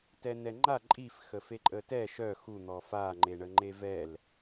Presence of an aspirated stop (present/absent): absent